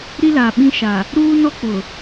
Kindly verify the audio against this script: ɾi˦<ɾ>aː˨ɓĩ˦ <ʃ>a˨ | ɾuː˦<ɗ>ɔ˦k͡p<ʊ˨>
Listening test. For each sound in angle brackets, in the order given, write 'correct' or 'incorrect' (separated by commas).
incorrect, correct, incorrect, correct